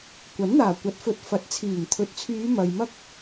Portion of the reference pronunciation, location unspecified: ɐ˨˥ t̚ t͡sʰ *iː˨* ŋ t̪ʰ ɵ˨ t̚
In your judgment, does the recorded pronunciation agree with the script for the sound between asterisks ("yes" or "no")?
no